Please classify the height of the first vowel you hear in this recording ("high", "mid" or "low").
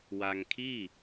low